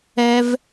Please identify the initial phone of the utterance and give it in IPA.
ɛ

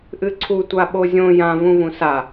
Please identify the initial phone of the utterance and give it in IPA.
ʔ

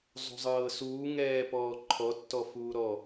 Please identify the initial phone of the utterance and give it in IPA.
zˤ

